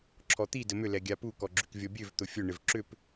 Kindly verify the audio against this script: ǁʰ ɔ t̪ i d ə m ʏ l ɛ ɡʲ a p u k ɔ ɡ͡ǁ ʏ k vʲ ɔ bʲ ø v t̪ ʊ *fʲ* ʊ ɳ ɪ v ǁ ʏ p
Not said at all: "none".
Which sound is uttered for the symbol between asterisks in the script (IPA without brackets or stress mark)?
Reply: fʲ